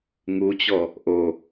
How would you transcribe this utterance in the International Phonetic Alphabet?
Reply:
ŋ u t͡ɕ ɔ | ʔ o

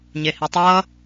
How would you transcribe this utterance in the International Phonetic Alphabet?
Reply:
ɲ e h i tˤ ʌ

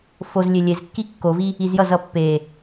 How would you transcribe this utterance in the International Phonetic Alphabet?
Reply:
f o z lʲ e lʲ e z kː i kː o v i | i z j ʌ z ʌ pː e

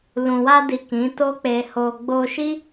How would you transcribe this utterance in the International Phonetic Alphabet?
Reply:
l ũ˨ w a˧ d i˨ k ĩ˨˦ t o˦ k͡p e˧ h o˧ ɡ͡b o˧ ʃ i˦

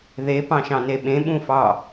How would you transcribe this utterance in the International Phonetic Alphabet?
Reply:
ð e p ɑ̃ ʃ ɑ̃ n e ɓ ẽ ɓ ũ f ɑ

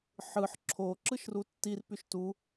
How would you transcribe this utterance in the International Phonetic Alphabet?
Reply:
ħ ɯ ħ ǁʰ o ǁ ɯ ʃ r u tː i r p y ʃ t u

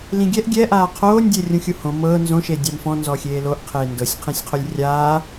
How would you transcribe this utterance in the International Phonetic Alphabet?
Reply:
l ĩ ɡʲ ɛ ʔ ɡʲ ɛ ʔ aː qʰ oː nʲ dʲ e rʲ ũ xʲ u h õ m ɤː n z õ ʃ e dʲ a m f ɔ̃ n z ɔ xʲ eː l o ʔ qʰ eː n d ɤ sʲ qʰ ĩ sʲ qʰ o lʲ rʲ aː

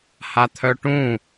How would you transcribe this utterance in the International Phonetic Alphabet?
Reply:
h a t̪ʰ œ ʈ ũ

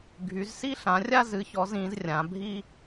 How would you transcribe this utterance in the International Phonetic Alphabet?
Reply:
ɡʱ y˨˦ z s i˥ ɬ ã˨˦ rʲ a˥ z ɨ˨˦ ç ɔ˨˦ z ĩ˨˦ z rʲ ã˨˦ bʱ i˥

